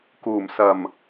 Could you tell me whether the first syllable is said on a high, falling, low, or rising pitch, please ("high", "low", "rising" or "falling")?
low